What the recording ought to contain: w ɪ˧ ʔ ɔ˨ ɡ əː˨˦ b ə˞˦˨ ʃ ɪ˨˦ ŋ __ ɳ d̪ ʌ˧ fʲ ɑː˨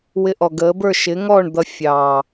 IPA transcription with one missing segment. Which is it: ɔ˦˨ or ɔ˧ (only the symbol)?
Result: ɔ˦˨